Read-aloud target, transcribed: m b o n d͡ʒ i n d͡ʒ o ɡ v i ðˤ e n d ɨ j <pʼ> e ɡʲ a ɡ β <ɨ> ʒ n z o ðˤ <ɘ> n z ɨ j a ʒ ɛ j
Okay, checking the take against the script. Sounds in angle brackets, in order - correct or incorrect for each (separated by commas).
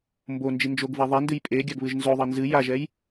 correct, correct, correct